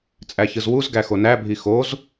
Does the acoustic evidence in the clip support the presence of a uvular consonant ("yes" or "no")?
no